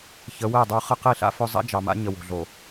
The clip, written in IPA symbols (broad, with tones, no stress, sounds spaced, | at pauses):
ç ə˨˦ w ɛ˦˨ dˤ ə˞˦ χ ə˦ q i˦˨ ɬ a̰˦ f ɵ˦ zˤ a̰˦ d͡ʒ ɑ˨ m a̰˦ ɲ ə˨ w o̤˨ ɮ o˨